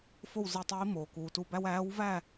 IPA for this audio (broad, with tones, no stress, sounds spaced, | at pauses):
f o˥˨ w z i˧˩ tˤ iː˧˥ m oː˩ k uː˩ t u˧ b æ˥ w æː˧˥ w v æ˥˨